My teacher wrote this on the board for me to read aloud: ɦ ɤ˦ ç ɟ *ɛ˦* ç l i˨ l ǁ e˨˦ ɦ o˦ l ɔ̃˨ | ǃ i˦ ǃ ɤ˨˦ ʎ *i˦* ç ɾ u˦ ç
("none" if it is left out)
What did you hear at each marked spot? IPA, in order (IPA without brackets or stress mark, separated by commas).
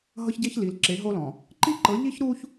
e˦, i˦